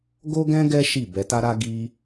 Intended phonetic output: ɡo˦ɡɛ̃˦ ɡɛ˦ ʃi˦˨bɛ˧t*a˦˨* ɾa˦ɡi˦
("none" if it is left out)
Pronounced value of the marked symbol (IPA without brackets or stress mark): a˦